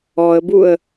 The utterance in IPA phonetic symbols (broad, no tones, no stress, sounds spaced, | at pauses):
ɔ ə̯ b u ə̯